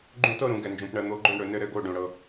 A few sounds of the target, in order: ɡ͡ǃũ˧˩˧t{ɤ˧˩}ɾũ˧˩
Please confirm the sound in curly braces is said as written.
yes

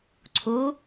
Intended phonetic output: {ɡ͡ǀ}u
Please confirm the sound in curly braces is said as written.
no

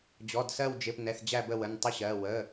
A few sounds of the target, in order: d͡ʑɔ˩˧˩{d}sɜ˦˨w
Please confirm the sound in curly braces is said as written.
yes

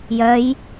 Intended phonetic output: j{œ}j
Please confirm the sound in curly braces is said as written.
yes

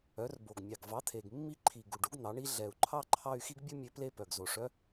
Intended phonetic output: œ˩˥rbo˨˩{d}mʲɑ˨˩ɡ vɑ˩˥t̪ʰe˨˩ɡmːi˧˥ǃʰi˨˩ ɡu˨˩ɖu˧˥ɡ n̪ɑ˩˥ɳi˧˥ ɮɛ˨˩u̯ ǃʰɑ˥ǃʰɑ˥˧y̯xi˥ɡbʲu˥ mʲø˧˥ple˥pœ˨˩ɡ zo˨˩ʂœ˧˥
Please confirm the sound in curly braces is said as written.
no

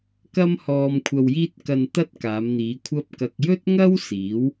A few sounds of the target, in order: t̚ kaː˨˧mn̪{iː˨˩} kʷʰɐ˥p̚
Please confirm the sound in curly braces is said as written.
no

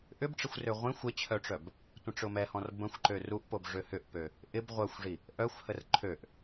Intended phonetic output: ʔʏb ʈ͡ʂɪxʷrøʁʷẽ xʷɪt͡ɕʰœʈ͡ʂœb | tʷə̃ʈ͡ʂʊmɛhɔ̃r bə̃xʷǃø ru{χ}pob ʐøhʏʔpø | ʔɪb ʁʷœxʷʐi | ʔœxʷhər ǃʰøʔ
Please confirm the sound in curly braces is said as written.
no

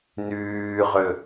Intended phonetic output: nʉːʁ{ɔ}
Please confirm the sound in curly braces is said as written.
no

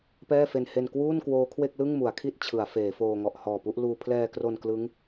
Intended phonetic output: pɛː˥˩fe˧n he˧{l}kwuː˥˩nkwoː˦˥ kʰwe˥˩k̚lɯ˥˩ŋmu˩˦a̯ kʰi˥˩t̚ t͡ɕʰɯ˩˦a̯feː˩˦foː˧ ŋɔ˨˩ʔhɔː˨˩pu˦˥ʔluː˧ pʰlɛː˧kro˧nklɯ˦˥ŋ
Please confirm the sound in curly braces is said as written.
no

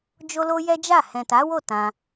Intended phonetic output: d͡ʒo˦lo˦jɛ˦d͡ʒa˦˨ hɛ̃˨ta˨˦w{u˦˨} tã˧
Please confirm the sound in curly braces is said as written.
no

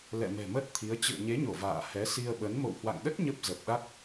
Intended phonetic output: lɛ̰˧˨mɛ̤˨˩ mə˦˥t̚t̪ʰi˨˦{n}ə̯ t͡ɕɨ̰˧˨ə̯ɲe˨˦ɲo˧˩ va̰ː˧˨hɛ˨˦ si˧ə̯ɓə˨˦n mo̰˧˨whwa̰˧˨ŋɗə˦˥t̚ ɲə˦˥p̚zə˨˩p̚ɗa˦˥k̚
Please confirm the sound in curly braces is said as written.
no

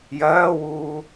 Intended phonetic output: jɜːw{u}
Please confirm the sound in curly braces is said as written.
no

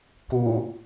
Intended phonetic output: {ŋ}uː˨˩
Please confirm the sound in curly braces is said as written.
no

